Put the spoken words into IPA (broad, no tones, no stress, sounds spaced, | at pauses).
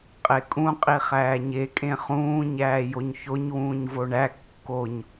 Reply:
qʼ e kʼ ũ qʼ i χ æː ɲ e kʼ ẽ χ ũː ɲ æː j o ɲ ç o ɲ w ũː ɲ v o ɳ æ kː o ɲ